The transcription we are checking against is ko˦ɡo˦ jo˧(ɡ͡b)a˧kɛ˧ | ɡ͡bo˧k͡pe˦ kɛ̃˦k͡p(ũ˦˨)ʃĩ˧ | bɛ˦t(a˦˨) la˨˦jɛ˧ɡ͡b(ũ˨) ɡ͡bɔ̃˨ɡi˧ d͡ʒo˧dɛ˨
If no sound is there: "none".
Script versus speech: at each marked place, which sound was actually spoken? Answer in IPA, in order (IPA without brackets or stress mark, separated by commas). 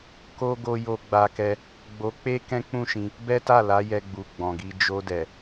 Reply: ɡ͡b, ũ˦˨, a˦˨, u˨